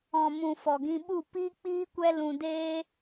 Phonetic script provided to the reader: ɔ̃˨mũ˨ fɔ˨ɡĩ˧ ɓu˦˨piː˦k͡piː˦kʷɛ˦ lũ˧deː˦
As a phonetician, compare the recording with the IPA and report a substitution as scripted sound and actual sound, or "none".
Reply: none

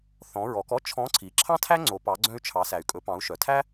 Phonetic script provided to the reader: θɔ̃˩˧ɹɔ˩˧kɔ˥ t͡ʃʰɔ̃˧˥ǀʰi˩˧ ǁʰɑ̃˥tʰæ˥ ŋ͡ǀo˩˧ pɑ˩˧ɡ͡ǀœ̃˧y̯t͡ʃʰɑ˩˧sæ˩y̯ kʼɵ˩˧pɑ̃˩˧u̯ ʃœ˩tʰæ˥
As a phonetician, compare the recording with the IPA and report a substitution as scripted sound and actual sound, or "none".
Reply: none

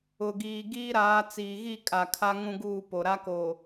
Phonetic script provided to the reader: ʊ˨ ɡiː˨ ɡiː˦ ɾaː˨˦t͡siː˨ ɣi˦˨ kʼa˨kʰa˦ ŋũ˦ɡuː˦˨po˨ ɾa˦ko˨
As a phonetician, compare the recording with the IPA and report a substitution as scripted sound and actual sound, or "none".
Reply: none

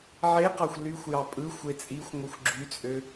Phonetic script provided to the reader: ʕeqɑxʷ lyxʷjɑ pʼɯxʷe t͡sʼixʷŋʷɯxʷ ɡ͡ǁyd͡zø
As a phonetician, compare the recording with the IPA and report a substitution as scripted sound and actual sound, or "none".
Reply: d͡z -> t͡sʼ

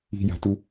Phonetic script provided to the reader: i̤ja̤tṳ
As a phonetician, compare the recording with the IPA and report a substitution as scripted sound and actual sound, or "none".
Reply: ṳ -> u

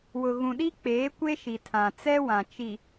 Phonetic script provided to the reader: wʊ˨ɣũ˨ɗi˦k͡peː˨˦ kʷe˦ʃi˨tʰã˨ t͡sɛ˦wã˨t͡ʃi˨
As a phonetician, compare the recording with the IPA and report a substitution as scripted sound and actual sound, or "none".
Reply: none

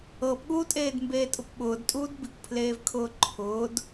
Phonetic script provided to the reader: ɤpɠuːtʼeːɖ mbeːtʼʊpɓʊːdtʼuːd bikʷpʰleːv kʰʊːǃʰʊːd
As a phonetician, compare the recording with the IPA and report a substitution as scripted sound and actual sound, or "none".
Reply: ɖ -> d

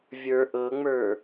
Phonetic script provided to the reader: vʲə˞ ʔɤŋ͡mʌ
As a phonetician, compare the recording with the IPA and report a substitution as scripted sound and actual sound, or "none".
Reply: ʌ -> ə˞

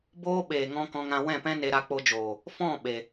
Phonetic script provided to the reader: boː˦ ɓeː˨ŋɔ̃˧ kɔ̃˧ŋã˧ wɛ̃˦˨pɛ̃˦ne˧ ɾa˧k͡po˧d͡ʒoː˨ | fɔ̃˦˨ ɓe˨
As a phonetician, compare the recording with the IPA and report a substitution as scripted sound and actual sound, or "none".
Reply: none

